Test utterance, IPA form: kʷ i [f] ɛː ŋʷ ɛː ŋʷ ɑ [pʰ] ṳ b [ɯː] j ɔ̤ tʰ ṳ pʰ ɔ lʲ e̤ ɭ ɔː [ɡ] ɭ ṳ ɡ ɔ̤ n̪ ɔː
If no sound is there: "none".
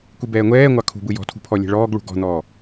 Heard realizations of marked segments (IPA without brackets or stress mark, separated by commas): b, kʰ, ɯ, ɡ